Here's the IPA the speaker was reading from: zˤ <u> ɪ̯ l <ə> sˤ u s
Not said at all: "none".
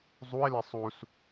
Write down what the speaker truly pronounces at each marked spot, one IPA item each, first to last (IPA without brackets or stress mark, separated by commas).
u, ɛ